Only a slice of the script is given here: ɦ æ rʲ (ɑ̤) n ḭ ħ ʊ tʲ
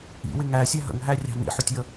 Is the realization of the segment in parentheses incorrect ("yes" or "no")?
no